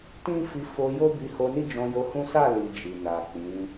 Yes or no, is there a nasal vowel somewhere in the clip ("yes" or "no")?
yes